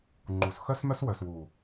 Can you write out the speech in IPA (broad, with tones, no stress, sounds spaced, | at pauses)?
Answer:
ŋ͡ǃ u˨ s x œ˦ s m œ˦ s w œ˨ s w u˨